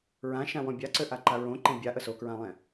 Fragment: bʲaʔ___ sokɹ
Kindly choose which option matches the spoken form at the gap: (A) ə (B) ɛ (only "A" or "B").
A